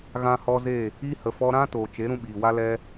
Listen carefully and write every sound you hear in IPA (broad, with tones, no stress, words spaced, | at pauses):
ɣã˧hɔ˧ze˦˨ | i˦hə˨ fɔ˧ɾã˦ toː˨t͡ʃe˨˦ ɾũ˧ɓiː˨wa˦lɛ˦